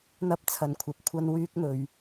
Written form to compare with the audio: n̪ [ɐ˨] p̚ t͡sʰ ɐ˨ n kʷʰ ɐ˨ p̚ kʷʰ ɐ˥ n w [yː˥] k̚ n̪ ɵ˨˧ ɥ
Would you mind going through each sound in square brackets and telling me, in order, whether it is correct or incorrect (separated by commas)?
incorrect, correct